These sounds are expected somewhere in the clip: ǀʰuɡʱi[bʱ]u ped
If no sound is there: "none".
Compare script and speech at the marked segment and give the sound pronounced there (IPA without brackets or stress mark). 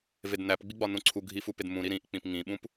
f